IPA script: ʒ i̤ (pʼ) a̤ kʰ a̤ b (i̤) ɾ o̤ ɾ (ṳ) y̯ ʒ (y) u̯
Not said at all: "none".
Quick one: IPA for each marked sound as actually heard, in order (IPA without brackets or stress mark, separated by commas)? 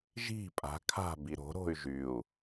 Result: pʼ, i, o̤, y